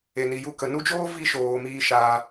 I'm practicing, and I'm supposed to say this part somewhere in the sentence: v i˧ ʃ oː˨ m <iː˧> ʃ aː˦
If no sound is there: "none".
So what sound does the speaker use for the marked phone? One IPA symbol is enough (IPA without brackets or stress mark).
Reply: iː˦